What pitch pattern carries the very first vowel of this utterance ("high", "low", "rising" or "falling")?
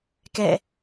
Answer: falling